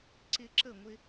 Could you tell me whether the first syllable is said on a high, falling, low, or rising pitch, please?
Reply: high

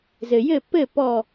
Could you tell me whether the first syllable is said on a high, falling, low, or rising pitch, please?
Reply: low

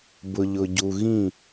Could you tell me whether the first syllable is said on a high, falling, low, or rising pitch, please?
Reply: low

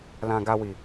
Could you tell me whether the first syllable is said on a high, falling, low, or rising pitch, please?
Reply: low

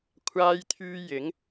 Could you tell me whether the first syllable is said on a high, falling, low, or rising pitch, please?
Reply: high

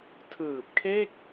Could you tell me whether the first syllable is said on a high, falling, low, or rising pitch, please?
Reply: low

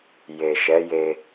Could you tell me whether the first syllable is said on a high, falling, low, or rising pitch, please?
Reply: low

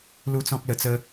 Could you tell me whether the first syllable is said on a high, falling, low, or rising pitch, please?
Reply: high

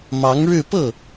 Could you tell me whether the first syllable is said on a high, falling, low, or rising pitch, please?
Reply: rising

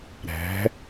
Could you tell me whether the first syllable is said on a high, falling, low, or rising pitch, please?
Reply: rising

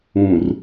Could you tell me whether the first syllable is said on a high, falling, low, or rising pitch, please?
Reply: low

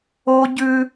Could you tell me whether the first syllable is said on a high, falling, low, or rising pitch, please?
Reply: high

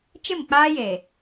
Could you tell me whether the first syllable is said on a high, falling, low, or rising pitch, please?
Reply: falling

